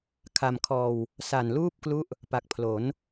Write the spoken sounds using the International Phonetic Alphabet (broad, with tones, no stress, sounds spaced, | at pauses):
kʰ a˧ m kʰ ɔː˧ w | s a˨˩ n l uː˥˩ p̚ k l u˦˥ ʔ | p a˨˩ k̚ pʰ l o˩˦ n